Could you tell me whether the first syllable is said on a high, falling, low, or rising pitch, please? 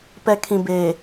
low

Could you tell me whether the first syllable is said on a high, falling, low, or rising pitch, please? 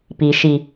low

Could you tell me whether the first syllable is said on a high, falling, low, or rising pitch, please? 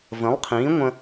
rising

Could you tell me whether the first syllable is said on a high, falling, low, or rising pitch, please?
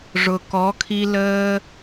low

